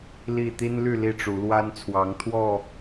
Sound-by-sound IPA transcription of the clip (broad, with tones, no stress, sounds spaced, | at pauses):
l i˥˨ t̪ i˦ n l y˥˨ l i˥˨ ʈ͡ʂ u˨˦ l w a˦ n t͡sʰ w ɑ˨˦ ŋ t̪ʰ w ɔ˥˨